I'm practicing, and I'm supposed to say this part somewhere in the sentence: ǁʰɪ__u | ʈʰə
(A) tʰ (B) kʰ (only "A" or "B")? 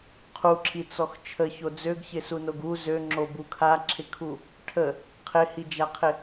B